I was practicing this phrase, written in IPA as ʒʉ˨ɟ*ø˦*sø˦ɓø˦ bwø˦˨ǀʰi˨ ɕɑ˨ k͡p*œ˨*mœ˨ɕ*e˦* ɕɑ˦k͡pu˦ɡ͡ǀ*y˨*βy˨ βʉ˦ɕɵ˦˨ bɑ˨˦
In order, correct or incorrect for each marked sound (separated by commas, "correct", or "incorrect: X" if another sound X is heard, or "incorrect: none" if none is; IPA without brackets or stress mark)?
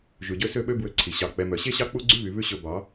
correct, incorrect: ɛ˨, correct, incorrect: y˦